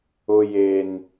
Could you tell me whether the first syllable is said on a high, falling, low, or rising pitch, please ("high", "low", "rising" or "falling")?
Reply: high